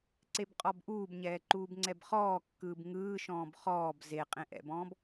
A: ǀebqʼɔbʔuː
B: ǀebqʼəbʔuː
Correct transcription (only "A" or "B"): A